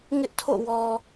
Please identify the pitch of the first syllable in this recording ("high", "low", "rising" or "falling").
high